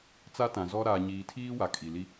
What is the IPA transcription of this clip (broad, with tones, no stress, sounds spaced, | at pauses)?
t͡s a˦ t ã˨ z ɔ˦ ɾ aː˨ ɲ iː˨ tʰ iː˦ w a˨ kʼ i˨ l i˦